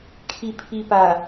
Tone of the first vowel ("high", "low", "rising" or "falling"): low